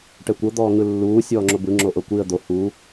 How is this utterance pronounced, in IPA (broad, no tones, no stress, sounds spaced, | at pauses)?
ʈ ɛ kʷ ɤ d̪ ɔː ŋ ɯ lː uː sʲ ɔː ŋ͡ǁ o b ɯ ŋ͡ǁ o ʔ ɤ kʷ i ə̯ d̪ o h u